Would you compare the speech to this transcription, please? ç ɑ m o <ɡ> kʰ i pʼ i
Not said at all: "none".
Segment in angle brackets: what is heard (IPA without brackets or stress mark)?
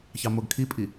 ɡ